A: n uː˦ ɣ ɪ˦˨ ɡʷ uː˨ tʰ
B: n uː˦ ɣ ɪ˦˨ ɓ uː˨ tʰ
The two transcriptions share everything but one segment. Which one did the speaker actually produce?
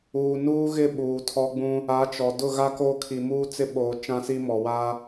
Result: B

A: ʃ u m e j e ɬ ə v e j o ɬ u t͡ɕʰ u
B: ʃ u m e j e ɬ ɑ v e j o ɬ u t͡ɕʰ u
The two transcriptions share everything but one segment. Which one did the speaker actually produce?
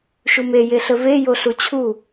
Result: A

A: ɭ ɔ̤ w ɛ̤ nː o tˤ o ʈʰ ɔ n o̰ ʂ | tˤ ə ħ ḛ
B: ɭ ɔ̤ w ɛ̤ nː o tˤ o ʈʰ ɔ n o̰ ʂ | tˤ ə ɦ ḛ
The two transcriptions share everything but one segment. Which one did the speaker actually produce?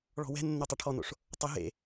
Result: B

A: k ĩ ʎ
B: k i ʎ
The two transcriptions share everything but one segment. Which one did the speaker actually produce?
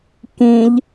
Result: A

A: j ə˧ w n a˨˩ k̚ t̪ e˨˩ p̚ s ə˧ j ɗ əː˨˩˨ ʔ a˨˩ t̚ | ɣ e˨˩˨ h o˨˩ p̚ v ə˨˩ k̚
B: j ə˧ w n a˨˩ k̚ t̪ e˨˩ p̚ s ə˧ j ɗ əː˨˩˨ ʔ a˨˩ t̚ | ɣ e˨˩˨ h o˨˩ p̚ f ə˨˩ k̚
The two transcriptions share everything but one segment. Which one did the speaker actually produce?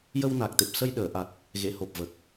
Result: A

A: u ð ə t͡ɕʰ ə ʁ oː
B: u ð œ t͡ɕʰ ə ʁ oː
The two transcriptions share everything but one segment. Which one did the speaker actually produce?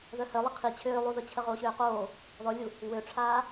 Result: A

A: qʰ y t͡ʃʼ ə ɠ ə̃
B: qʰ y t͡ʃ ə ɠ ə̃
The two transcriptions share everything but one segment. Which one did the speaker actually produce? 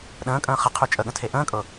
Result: A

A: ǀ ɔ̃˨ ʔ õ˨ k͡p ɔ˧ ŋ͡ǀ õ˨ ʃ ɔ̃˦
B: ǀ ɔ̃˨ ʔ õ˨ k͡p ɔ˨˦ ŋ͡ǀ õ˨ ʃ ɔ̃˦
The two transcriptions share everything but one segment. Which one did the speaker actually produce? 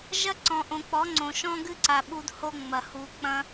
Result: B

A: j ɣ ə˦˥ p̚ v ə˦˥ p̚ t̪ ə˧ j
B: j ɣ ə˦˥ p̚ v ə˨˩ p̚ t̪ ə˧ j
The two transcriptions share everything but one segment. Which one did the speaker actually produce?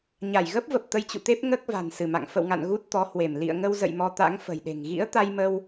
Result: B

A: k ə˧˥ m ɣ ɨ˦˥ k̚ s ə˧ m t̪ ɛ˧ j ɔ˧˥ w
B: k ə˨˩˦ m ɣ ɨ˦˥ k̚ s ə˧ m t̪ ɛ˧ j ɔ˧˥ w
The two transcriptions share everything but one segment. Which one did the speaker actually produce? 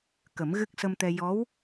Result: B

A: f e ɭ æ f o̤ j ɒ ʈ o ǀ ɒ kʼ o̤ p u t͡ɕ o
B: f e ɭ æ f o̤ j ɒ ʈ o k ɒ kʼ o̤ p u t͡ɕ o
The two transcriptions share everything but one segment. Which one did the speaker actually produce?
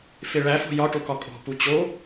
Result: B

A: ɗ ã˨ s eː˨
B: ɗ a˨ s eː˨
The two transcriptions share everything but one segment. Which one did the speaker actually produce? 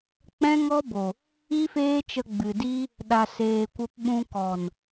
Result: B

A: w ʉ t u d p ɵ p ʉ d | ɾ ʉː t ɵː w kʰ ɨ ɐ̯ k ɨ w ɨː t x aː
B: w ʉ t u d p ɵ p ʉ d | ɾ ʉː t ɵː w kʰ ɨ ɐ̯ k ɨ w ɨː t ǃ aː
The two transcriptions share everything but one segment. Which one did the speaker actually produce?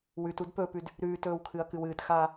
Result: A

